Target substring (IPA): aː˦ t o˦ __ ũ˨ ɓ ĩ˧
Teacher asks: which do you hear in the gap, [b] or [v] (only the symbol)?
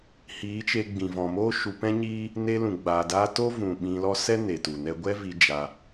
v